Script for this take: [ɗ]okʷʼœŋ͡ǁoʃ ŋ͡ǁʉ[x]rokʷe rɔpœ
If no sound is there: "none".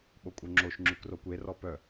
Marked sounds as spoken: ɓ, k

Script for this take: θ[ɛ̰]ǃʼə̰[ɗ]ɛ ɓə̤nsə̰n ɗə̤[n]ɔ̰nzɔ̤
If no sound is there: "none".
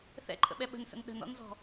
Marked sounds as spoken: ɛ̰, ɓ, n

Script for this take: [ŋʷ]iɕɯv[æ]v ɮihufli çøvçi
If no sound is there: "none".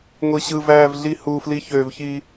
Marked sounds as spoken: ŋʷ, æː

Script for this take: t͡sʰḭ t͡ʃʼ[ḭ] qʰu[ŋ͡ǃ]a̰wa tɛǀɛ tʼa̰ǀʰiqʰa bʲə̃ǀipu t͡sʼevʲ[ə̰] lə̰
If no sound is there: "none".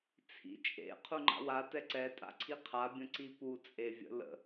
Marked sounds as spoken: ḛ, ŋ͡ǃ, ə̰

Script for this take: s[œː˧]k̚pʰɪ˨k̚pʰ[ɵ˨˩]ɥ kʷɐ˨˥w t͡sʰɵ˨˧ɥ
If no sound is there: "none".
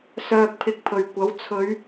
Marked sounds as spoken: œː˨, ɵ˨˩

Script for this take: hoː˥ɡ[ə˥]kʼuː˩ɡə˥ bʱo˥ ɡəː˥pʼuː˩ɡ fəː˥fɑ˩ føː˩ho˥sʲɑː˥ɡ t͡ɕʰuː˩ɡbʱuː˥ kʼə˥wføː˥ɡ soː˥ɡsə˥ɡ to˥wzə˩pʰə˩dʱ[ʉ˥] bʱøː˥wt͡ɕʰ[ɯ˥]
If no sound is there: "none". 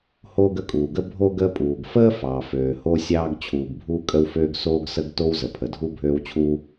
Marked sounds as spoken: ə˥, u˥, u˥

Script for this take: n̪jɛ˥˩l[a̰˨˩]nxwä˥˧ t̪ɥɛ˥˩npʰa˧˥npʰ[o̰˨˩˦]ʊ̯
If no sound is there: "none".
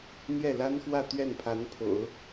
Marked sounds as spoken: a˥, o̰˨˩˦

